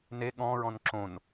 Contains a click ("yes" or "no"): yes